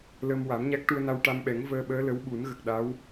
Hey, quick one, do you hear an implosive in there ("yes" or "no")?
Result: yes